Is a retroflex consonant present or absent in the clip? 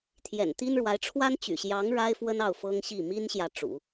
present